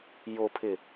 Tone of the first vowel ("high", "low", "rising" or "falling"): low